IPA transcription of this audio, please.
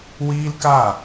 w iː˦ l k a˦˨

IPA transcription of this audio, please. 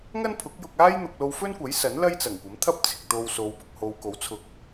ŋ ɐ˥ n pʰ ʊ˨˥ k̚ j ʊ˧ k̚ aː˥ j n̪ ʊ˨ k̚ l o˧ w f ɵ˥ n kʷ ɐ˨˥ j s ɐ˨˥ n l ɐ˥ j t͡s ɐ˨˩ ŋ kʷ ɐ˨˥ m t̪ʰ ɐ˥ p̚ t͡sʰ ɪ˨ k̚ t̪ o˧ w s o˨˧ w p ʊ˨ k̚ h o˧ w k o˨˥ w t͡sʰ ʊ˨ k̚

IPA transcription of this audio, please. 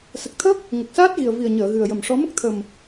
s ə˨˩ k̚ t̪ʰ ə˦˥ k̚ | ŋ ə˨˩ k̚ s aː˦˥ t̚ ɣ i˨˩ ə̯ v i˨˩ ə̯ ɲ əː˨˩˨ ɣ ɨ˨˩ ə̯ j ə˨˩ m ʂ ɔ˧˥ m ə˦˥ k̚ t̪ʰ ə˨˩ m

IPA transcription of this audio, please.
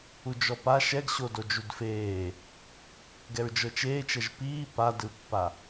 u d͡ʒ ɔ p a ʃ ɛ ɡ ɕ o d o d͡ʒ u d f eː | ɡ ɛ ɹ d͡ʒ ɤ t͡ʃ eː t͡ʃ ɛ ʒ p iː p a d ɯ pː a

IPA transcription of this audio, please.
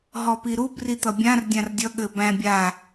ɦ ɔ p i ɾ u b r i t̪ ʌ bʲ ã r dʲ ã r dʲ ʌ ɠ ɘ b æ̃ bʲ a

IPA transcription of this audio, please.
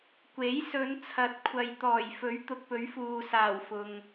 kʷ e˨˥ j s ɵ˨˧ n t͡sʰ ɐ˨˥ t̚ kʷʰ ɐ˨ j t̪ ɔː˨˩ j f ɵ˨˥ ɥ t̪ ʊ˨ k̚ p ɵ˨˥ ɥ f uː˨ s aː˨˩ w f ʊ˨ ŋ

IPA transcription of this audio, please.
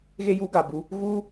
ɣ e˧ j u˨˦ ɡ a˨ b u˧ | ɣ u˧

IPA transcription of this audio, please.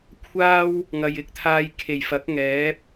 kʷʰ aː˥ w | ŋ ɐ˨ j ɪ˨ k̚ t̪ʰ aː˧ j kʰ e˨˩ j f ɐ˨˥ k̚ ŋ ɛː˨˥ p̚

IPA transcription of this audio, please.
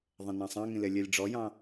ðˤ ẽ n ɑ̃ sˤ ɑ̃ ŋ ĩ l e lʲ e lʲ ɖ͡ʐ ɔ j ɑ̃

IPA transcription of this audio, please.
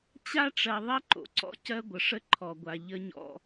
t͡ɕ a˦ ʈ͡ʂ ɜ˨ ðˤ ɜ˦ ǃ o̰˨ ǀ ɔ̰˦ c ɜ˦ ɡʷ ə˨ ʂ ə˦ ǃʰ ɔ˨ ɡʷ a˨ ʎ ə˦ ɲ ɔ̰˦

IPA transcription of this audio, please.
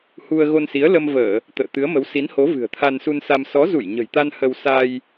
h u˧ ə̯ ɣ o˧ n s i˨˦ ə̯ l ə˧ m v əː˧˩˨ | t̪ ə̰ː˧˨ t̪ ɨ˨˦ ə̯ m ə˨˦ w s i˨˦ n h o˨˦ v ɨ̤˨˩ ə̯ t̪ʰ a˧ n s u˧ n s a˧ m s ɔ˨˦ z u˧˩ j ɲ ə̤˨˩ j t̪ a˧ n h ə˧ w s a˧ j

